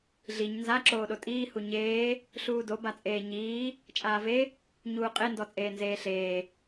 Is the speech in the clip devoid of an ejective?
no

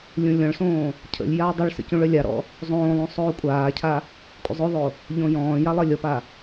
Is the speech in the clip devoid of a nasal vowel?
no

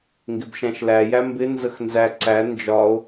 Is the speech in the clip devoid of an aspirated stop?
yes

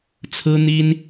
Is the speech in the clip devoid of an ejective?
yes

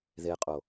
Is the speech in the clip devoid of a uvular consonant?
no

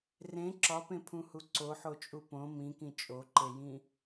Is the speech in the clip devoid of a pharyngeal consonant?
no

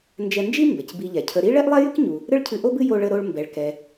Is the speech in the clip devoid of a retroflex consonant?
no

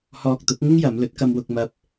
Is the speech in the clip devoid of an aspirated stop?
yes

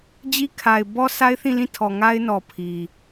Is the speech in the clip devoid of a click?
yes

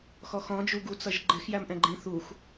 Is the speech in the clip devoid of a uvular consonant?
yes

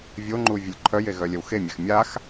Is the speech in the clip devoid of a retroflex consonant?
yes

